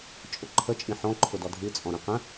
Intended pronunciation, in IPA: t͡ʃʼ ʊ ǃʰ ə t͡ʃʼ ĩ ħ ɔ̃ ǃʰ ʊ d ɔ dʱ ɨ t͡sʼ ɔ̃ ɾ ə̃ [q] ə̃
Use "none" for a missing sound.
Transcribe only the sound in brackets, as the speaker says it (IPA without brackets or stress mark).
q